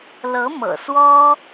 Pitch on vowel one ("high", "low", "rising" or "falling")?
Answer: rising